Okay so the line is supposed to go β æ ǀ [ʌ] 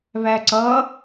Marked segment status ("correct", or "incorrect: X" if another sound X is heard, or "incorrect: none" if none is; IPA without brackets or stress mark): correct